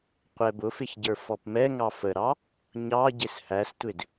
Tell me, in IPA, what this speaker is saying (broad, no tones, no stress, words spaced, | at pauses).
qʷɛbʊfɪç ɟə˞fɔpmɛŋɑ fəɾɑ | ɲɑ ɟɪshæstʷɪd